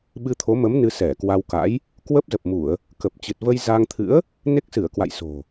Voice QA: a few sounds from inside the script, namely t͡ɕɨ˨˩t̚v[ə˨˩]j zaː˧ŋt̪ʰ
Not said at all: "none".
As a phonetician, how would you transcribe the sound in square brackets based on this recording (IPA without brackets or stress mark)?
ə˧